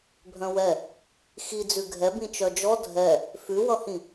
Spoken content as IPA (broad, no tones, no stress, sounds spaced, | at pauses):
bʱ œ̃ w ɛ | x i d͡z ʉ ɡʱ ɛ b ĩ t͡ʃ œ d͡ʒ ɔ dʱ ɛ | f ʉ w ʌ h ĩ